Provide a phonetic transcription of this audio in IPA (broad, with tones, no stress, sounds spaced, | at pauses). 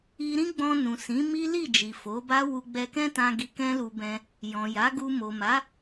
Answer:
i˧ ɾ ĩ˦ ɡ͡b ɔ̃˧ n ũ˨ s ĩ˨˦ m i˦ l i˦˨ d͡ʒ i˨ f o˨˦ b a˦ w u˧ ɡ͡b ɛ˧ k ɛ̃˦ t ã˧ ɡ i˧ k ɛ̃˦ l u˧ b ɛ̃˧ | j ɔ̃˨ j a˨˦ ɡ u˧ m o˨ m a˨˦